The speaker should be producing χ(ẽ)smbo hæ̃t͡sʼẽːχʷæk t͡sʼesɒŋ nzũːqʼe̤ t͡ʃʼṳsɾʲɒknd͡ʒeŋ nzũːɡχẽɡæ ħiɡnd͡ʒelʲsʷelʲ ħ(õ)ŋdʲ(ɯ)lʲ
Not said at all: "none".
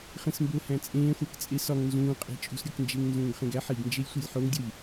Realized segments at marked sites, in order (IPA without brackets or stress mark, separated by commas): ẽ, o, u